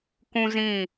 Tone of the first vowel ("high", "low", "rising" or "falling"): high